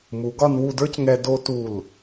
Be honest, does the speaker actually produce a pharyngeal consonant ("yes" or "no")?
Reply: no